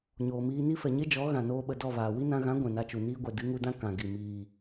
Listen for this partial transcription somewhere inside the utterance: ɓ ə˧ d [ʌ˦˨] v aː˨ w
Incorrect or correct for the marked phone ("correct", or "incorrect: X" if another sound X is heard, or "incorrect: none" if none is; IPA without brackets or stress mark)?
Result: incorrect: ɔ˦˨